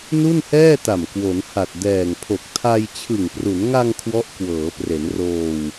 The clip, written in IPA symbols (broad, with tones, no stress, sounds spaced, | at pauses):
n u˥˩ n h ɛː˥˩ t a˨˩ m k w o˩˦ n h a˨˩ t̚ d ɛː˨˩ ŋ pʰ o˨˩ k̚ tʰ a˧ j t͡ɕʰ ɯ˨˩ ŋ p r u˩˦ n ŋ a˧ ŋ kʰ w ɔ˦˥ ʔ k w ɤː˩˦ p r e˩˦ n r oː˧ w